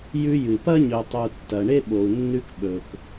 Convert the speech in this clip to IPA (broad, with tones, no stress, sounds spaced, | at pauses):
j ʉ˧ j ɨ˨ p ɐ˦ ɲ ɵ˨ tˤ u˨ tː ɐ˨ ɳ e˦ ɓ o˨ u̯ nː ʉ˧ k ɓ ɵ˨ k